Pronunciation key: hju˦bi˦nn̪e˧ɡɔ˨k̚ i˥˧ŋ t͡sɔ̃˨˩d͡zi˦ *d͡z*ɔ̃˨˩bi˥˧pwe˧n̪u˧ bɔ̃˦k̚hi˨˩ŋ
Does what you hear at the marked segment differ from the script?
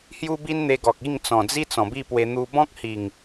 yes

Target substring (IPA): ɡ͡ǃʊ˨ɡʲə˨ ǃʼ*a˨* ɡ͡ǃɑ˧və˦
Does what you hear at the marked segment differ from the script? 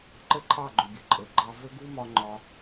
yes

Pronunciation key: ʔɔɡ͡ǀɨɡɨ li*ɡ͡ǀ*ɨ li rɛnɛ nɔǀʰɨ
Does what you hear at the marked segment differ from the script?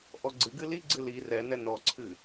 no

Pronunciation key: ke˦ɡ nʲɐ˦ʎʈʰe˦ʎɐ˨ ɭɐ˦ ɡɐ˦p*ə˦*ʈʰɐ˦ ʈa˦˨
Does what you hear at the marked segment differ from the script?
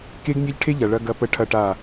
no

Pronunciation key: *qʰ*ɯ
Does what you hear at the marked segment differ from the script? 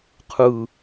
no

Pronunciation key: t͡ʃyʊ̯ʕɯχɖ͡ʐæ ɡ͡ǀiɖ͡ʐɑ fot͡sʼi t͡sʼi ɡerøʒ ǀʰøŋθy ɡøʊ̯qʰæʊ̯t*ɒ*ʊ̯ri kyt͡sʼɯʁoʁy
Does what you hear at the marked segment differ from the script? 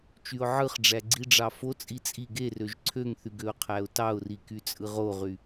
yes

